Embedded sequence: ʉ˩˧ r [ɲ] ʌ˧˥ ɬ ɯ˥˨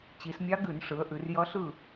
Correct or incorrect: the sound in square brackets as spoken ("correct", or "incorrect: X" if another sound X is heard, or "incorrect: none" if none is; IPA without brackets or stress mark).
incorrect: j